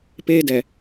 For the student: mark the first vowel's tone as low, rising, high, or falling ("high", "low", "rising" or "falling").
high